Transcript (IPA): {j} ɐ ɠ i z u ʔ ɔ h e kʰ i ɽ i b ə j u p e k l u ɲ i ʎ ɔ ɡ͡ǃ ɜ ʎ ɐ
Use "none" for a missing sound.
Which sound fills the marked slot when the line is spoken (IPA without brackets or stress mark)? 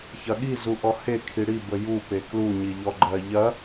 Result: ç